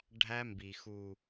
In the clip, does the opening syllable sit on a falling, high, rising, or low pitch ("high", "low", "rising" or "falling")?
high